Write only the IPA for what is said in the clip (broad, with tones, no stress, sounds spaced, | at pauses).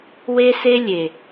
w e˦ s e˦ lʲ e˨